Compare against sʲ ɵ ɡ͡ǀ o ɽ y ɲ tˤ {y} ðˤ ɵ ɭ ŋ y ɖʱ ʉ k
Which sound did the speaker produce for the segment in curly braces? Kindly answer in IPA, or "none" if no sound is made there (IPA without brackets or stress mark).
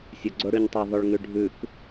y